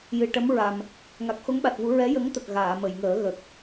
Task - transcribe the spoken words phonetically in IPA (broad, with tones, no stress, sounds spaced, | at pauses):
j ɨ˨˩ ʈ ə˧˥ m ɹ a˨˩ m | ŋ a˨˩ k̚ x o˧˥ ŋ ɓ a˨˩ t̚ v u˨˩˦ ɹ ɛ˧˥ j ə˧˥ ŋ t̪ ə˨˩ k̚ ɣ aː˨˩˨ m ə˨˩˨ j ŋ əː˨˩˦ ɣ ə˨˩ k̚